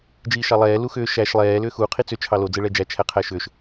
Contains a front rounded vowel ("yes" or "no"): yes